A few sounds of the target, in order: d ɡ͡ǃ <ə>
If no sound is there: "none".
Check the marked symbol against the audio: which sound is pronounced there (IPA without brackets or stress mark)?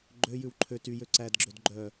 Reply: œ